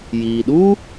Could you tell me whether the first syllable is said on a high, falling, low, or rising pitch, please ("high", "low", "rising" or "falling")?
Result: low